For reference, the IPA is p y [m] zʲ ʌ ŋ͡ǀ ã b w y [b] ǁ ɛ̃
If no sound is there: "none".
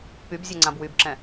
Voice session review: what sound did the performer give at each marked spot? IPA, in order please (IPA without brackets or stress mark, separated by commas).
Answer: b, b